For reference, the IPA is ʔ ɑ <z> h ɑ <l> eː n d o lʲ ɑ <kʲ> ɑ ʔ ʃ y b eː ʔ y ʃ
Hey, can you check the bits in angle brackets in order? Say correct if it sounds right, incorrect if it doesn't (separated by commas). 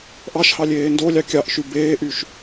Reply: incorrect, incorrect, correct